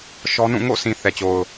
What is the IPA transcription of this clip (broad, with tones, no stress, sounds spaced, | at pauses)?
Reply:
ʃ ɔ˦ n ũ˦˨ ŋ o̰˦˨ s ĩ˨ θ ɛ˨ t͡ɕ o˨ ʊ̯